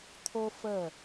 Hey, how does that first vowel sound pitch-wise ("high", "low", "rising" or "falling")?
high